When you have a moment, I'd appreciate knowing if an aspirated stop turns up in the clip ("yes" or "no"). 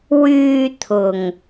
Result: yes